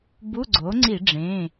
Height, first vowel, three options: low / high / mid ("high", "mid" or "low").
high